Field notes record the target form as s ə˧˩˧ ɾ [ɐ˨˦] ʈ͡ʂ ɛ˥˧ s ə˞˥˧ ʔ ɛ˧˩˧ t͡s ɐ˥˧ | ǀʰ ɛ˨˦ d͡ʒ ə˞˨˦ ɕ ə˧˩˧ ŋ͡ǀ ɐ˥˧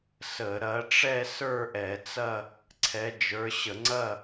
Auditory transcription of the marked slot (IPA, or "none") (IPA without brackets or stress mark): ɐ˨˦